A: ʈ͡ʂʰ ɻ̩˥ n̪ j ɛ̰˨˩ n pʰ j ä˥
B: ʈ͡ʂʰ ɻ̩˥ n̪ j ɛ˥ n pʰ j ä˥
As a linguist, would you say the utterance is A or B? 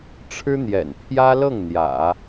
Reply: A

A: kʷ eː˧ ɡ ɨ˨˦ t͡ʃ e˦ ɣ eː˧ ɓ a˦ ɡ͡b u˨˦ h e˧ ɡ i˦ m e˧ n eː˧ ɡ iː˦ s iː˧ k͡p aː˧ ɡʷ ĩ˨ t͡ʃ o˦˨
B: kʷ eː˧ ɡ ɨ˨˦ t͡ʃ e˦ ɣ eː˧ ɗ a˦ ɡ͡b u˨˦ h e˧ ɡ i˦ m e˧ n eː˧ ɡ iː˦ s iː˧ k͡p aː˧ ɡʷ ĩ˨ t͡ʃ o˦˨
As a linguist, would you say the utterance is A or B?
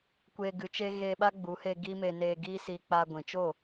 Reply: A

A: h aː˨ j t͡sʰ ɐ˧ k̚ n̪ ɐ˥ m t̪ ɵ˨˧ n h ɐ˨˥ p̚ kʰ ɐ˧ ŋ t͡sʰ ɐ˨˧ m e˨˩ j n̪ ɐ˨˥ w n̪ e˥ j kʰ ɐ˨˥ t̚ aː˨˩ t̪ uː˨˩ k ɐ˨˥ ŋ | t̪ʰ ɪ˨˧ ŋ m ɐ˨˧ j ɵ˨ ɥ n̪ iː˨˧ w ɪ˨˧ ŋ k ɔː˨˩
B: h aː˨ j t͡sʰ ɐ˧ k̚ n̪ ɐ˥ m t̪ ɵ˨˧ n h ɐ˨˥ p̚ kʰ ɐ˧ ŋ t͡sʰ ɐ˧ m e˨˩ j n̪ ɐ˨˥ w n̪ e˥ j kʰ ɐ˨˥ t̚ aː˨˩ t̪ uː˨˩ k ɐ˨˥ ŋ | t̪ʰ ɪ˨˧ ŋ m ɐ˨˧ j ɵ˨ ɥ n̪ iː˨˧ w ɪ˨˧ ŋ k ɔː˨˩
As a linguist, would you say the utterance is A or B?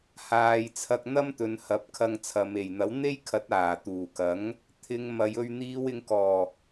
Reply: A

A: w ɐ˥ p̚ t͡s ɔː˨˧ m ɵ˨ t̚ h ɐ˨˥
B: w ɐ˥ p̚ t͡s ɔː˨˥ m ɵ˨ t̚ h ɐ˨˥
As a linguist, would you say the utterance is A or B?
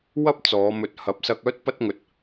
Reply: A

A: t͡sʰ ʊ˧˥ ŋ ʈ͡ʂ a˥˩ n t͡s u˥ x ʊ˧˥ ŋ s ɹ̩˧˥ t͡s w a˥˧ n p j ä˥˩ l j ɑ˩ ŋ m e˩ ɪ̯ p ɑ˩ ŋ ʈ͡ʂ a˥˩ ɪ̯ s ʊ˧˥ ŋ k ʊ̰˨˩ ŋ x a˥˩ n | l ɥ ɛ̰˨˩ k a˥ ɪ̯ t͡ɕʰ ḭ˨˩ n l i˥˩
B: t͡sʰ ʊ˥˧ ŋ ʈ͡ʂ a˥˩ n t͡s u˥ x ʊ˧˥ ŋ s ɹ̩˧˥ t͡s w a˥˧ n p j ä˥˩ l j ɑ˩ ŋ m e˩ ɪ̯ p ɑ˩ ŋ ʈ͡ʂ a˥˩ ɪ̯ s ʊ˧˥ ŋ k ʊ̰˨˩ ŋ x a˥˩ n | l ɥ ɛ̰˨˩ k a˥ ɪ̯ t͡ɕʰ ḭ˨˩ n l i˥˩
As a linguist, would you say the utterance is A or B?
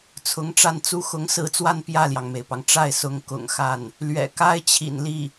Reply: A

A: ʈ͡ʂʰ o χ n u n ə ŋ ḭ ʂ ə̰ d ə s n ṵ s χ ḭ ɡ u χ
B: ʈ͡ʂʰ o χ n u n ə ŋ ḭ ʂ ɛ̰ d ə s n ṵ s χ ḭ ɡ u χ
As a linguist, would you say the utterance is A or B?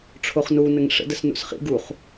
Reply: A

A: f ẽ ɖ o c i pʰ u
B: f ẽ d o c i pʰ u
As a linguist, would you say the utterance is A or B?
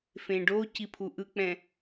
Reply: A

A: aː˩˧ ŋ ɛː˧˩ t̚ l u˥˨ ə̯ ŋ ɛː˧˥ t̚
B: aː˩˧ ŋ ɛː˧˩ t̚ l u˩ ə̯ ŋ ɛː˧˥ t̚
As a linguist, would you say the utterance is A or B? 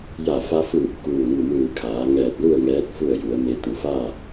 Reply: A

